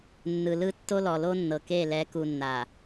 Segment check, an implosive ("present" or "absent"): absent